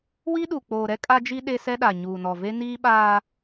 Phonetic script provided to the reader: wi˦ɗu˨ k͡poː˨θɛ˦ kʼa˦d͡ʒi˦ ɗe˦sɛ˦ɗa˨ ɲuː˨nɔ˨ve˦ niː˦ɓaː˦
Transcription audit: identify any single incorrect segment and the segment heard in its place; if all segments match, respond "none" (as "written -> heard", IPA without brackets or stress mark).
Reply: θ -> ɾ